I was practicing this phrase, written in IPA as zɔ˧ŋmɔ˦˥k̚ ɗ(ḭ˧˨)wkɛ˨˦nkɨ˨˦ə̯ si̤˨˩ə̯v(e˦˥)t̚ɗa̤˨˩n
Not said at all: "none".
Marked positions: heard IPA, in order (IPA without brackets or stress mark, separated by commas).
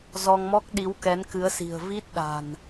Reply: i˨˦, i˦˥